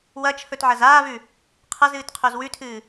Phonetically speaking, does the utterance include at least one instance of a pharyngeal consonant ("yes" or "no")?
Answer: yes